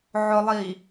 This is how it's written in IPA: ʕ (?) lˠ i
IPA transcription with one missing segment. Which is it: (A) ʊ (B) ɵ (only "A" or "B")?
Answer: A